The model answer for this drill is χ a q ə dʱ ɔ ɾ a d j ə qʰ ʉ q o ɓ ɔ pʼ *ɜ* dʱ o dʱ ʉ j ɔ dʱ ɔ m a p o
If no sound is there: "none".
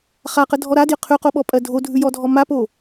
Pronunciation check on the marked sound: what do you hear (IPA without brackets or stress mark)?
ɜ